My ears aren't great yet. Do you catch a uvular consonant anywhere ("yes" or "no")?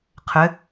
yes